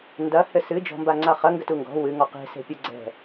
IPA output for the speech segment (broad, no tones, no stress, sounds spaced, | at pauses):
n d ɐ h ɘ s ɨ d͡ʒ ɔ̤ m b a ŋ͡ǀ a χ ɐ ŋ ɡ ɘ t u ŋ ɡ ɔ̤ w ɨ ŋ ɔ q e̤ s e̤ pʲ ɨ ɡ͡ǀ ɛ̤